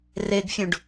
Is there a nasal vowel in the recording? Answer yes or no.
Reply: yes